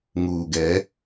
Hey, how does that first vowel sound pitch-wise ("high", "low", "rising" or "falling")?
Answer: low